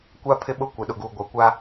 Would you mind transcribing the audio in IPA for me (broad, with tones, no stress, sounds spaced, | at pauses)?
kʷ a˦ pʰ ɪ˦ ɓ ʊ˦ kʷ ɪ˨ ɗ ʊ˨ ɡ uː˨ ɡʷ a˨ kʷ a˦